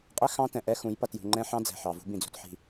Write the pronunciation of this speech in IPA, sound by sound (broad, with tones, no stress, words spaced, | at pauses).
qʼɛ˦ xɑ̃˦tɛ̃˨ʔɛ˦xũ˨˦j pʌ˨tjṳ˨ ŋ͡ǃɛ̃˦ħɑ̃˦ d͡zɛ̤˨ħɑ˨ vṳ˦bĩ˨d͡zṳ˨tħi̤˨